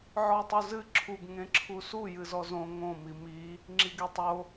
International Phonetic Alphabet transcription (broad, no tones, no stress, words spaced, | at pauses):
ʕɔtˤuzɨ ǁʰuɡ ŋẽǁʰusu jɨzɔzõ ŋõ mimi | ŋ͡ǁiɡetˤo